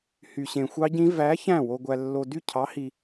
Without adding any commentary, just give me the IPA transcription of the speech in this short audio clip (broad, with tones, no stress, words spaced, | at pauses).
hy˨ɕẽ˨xʷɑ˦˥ɟĩ˦˥ væ˨˥ çæ̃˥˩wo˨ɡʷæ˨lːo˨ dy˥˩cʰɑ˨˥hi˨